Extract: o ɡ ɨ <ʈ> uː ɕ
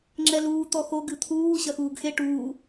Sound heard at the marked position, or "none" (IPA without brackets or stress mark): t̪ʰ